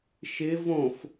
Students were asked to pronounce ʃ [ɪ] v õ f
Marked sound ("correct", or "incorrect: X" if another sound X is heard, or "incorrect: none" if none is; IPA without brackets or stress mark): correct